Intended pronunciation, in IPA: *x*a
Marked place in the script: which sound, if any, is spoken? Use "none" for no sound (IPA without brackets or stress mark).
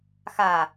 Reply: x